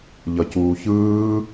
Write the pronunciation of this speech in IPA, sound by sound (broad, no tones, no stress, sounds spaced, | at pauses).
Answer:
ʎ ʌ c uː ç ɯː